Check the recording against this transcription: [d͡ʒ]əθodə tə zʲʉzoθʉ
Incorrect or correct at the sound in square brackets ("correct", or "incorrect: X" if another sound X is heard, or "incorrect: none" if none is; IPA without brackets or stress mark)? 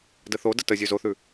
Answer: incorrect: d